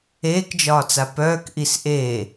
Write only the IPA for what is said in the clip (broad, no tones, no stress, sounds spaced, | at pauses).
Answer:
eː k d͡ʒ ɒː t͡s a p œː k ʔ i s ʔ eː